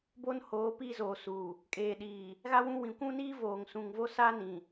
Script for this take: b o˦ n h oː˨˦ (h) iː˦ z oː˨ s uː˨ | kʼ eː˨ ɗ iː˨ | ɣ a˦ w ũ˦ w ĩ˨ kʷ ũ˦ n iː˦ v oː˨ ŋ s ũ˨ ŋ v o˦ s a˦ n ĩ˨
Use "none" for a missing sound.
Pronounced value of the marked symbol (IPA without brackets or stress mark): p